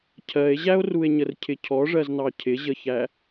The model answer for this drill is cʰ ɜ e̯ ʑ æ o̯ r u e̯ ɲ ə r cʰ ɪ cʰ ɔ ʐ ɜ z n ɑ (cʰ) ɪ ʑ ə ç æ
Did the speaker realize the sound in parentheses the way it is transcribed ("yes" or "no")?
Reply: yes